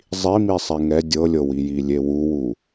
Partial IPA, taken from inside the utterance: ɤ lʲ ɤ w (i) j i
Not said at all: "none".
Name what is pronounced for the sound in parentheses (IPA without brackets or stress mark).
i